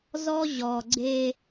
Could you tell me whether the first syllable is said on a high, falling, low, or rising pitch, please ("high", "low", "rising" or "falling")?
high